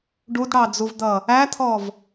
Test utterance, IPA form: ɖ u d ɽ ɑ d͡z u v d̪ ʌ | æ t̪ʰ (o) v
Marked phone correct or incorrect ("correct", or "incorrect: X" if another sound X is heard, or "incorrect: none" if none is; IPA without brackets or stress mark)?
incorrect: ɔ